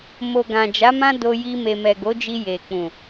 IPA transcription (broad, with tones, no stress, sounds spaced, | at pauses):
m o˨ ɡ ã˨ d͡ʒ a˨˦ m ã˦ d o˧ j i˧ m e˨ m ɛ˨ ɡ o˨˦ d͡ʒ i˧ j e˨ k͡p ũ˨